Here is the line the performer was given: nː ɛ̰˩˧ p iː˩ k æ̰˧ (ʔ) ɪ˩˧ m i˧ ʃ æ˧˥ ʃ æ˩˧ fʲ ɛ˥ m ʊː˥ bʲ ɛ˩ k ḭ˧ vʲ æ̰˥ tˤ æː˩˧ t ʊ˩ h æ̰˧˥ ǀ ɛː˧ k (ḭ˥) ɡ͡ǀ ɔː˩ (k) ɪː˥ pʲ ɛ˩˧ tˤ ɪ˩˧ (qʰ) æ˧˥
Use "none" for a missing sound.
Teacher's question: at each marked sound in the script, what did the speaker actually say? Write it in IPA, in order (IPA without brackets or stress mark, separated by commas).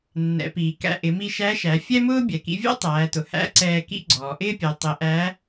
ʔ, ḭ˥, ʔ, ʔ